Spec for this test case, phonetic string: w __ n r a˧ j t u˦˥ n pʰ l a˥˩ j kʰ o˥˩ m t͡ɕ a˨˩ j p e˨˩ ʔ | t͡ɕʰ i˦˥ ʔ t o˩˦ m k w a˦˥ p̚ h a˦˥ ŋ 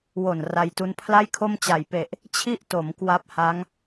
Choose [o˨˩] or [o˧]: o˨˩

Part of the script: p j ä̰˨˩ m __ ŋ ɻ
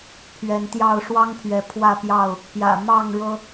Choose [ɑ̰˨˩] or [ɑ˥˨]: ɑ˥˨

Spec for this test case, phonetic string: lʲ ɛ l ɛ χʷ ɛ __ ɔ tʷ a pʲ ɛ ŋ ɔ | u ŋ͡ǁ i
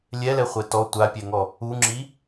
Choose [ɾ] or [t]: t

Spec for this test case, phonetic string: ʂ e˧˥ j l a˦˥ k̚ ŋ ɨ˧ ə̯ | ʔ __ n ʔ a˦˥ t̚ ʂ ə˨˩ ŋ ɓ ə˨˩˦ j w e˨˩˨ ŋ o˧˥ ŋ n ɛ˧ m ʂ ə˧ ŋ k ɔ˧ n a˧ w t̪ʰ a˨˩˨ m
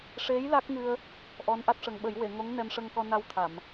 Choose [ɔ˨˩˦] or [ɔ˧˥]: ɔ˧˥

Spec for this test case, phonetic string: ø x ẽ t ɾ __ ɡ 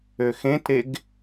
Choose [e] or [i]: e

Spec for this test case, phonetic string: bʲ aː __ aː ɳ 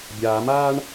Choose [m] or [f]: m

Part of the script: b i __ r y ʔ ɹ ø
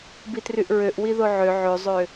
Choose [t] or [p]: t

